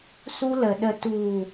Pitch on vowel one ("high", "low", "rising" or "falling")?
high